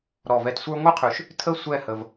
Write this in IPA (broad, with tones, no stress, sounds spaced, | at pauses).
ɾ ɔ˧˩ v ɛ˧ t sʷ ə˞˥ ŋʷ ɯ˥ qʰ ʉ˧ ʃ | tʰ ə˥˧ sʷ ɛ˥˧ h ə˧ v